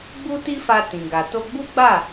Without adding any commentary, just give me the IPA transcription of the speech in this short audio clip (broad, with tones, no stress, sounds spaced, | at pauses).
ɡ͡b u˦ t i˦ f a˧ t ĩ˨ ɡ a˨ t o˧ ɡ͡b u˦ ɡ͡b a˦˨